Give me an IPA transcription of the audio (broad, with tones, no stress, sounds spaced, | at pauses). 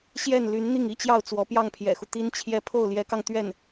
ɕ j ɛ˥˩ n l y˧˥ n n̪ i˥˩ ŋ i˥ t͡ɕ j ɑ˥˩ ʊ̯ t͡s w ɔ˧˥ p j ɑ˥˩ ŋ pʰ j ɛ̰˨˩ x u˦ t̪ i˥ n t͡ɕʰ j ɛ˥˧ pʰ o˥˩ ʊ̯ l j ɛ˧˥ k ɑ˧ ŋ t̪ ɥ ɛ˥˩ n